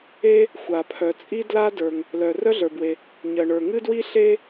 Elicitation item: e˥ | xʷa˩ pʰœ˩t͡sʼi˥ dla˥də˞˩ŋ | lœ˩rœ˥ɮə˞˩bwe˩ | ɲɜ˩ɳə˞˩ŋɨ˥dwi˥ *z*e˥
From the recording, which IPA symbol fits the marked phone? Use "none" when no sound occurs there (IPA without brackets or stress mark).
ɬ